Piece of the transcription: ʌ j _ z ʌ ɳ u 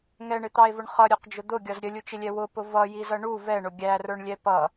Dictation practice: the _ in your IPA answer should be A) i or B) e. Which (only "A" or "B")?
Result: A